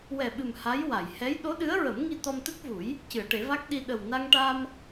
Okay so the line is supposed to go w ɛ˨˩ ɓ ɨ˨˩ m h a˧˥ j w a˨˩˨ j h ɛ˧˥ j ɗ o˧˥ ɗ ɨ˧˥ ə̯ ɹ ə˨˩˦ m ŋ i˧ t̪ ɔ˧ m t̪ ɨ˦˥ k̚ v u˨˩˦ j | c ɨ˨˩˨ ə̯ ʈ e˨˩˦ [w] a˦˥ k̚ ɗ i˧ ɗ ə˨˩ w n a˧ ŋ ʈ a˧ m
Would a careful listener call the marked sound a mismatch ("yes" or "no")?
yes